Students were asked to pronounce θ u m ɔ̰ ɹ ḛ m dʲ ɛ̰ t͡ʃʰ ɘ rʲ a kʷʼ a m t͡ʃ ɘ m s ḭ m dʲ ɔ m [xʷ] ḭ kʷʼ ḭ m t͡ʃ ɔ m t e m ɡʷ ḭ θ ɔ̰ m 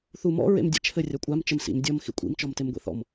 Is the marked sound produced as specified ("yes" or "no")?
no